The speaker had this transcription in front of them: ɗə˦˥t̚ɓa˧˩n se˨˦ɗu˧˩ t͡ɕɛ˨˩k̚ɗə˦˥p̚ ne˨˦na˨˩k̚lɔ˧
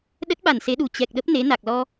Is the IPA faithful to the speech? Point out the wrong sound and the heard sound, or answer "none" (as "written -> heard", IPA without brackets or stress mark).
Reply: none